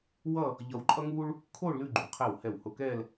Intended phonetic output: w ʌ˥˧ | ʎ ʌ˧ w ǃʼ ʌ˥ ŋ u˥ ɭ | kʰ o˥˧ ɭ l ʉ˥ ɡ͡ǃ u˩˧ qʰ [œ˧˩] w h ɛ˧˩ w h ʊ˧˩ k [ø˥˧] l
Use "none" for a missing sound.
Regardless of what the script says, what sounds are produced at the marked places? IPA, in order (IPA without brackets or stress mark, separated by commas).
ɛ˧˩, ɛ˥˧